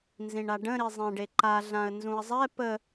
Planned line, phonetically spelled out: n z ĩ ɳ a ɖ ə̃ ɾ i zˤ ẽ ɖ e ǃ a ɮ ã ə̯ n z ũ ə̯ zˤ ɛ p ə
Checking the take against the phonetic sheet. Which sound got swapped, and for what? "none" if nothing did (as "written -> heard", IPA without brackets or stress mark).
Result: none